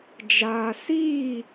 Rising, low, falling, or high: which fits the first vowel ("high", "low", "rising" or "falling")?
low